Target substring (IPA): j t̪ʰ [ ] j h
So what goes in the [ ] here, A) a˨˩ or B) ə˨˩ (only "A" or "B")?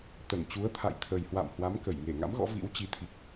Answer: B